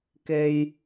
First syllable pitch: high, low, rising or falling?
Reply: low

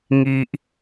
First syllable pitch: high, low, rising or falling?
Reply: low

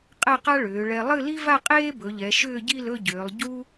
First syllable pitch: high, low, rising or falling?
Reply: falling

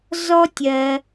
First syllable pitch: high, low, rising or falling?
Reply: high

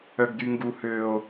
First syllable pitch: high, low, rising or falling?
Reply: high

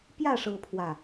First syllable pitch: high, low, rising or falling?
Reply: falling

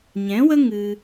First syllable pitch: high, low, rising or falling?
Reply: rising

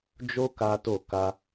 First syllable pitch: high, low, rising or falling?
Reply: high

